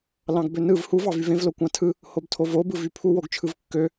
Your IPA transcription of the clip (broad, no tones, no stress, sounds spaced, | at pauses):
l ɑ̃ ɡ b ø n ɯ v h u v ɑ v y v ẽ v l o kʷ ɑ̃ tʰ ɯ | h o b tʰ o v o b ɯ v y pʰ u w o ɡ t͡ʃʰ ɯ v kː ø